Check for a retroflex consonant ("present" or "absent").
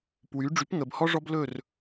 present